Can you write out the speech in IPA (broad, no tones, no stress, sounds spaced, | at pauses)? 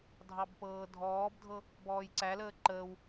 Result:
dʱ ɑ b p ɤː dʱ ɔː b dʱ ɤ | b ɔː j ǀ æ l əː ǃ əː w